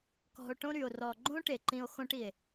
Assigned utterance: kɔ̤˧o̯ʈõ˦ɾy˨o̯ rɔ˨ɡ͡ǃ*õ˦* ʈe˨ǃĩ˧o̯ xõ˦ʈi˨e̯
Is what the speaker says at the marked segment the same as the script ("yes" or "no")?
yes